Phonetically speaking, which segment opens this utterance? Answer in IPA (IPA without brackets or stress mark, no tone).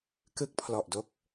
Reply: k